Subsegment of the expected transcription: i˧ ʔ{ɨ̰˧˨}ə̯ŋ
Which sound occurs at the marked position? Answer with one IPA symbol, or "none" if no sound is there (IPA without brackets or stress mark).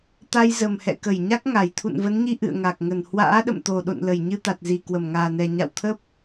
ɨ̰˧˨